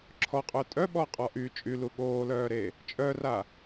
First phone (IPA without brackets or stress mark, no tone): ǁʰ